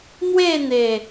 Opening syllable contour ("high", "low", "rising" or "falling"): falling